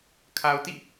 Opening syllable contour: low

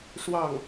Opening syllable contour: falling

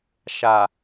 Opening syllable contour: low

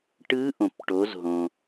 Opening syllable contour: rising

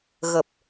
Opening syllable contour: low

